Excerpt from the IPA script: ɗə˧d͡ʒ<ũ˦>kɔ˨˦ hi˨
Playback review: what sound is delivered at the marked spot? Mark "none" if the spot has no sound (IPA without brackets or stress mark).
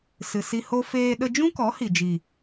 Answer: ũ˦